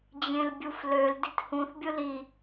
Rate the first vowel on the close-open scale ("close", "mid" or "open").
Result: mid